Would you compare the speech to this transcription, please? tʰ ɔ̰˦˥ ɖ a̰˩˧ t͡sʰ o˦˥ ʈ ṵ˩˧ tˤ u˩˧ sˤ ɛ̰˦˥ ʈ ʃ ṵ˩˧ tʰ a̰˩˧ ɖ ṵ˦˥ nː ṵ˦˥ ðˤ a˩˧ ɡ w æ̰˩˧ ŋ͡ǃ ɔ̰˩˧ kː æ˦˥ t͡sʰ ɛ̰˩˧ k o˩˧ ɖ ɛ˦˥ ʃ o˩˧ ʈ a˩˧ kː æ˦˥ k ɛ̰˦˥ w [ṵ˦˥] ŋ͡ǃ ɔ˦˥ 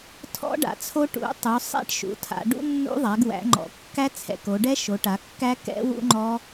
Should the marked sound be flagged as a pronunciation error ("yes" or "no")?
no